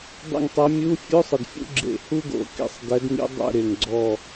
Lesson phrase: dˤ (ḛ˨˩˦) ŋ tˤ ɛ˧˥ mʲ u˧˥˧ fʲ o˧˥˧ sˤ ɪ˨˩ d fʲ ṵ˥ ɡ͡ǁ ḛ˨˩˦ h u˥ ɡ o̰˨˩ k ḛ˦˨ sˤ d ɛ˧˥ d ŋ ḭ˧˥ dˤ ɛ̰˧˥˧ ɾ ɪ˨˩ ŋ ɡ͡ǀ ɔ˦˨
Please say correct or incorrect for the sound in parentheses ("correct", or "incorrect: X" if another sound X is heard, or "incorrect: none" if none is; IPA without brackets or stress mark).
incorrect: ḛ˦˨